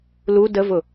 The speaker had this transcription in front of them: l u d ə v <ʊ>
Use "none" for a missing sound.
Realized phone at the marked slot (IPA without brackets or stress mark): ʊ